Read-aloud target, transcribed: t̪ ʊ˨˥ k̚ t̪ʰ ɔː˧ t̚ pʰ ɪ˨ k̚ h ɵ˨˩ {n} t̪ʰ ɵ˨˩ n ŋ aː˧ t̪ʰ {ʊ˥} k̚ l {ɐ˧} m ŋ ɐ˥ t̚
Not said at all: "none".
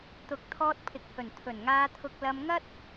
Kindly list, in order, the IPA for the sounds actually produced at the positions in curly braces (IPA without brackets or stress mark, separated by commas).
n, ʊ˧, ɐ˧